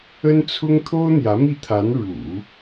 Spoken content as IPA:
ə˥ n t͡sʰ ʊ˥ ŋ t̪ʰ o˥ ʊ̯ n̪ j ä˧˥ m i˥˩ t̪ʰ a˧˥ n ɻ ṵ˨˩˦

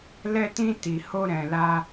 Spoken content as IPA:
l ɛ˧ t ĩ˧ t i˨ h o˧ ɾ ɛ̃˨ l a˧

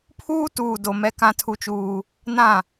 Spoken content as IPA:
pʰ uː˦ t uː˨ d o˨ m ɛ˦ k ã˦ tʰ u˦ t͡ʃ uː˦ | n ã˦˨

